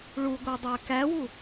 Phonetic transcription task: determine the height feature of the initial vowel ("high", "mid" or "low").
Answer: high